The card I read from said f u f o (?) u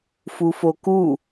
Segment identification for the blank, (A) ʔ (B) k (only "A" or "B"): B